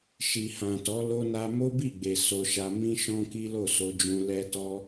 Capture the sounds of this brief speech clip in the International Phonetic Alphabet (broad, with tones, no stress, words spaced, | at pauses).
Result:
ʃi˨hã˨tɔ˨˦ lo˧na˧ mo˦bi˦˨ɡ͡be˨ so˧ʃa˧ mĩ˦ʃɔ̃˦ki˦ lo˦˨so˧d͡ʒũ˧ lɛ˦tɔ˦